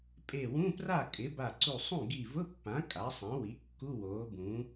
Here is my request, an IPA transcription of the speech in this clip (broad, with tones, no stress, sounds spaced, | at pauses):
pʼ e˧˩ w ũ˧˥˧ p r a˥˩ kʼ ɪ˩˥ b a˧˩ ǀ u˧˩ sˤ ũ˥˩ ɡ i˧˩ v ʊ˧˥˧ pː ã˩˥ kʼ a˩˥ sˤ ã˩˥ w i˩˥ kː u˧˥˧ w oː˩˥ b ũː˩˥